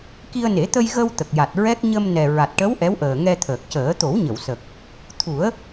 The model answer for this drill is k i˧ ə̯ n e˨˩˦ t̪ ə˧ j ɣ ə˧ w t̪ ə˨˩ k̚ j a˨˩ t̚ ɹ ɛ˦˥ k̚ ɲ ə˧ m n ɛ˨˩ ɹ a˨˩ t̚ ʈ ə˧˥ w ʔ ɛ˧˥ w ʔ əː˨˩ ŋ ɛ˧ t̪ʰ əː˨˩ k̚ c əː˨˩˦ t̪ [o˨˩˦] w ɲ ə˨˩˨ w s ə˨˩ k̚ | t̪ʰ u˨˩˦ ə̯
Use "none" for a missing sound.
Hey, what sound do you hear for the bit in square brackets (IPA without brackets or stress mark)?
o˨˩˦